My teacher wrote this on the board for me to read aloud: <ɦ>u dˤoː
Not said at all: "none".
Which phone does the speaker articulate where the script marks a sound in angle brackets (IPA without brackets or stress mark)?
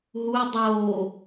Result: ɦ